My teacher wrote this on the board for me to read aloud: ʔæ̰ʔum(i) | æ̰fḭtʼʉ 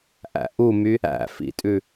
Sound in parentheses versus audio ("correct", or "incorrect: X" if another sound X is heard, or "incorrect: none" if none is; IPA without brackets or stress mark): incorrect: y